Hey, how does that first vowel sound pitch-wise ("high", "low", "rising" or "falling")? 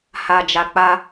low